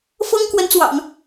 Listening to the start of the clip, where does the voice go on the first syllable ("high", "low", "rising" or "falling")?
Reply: high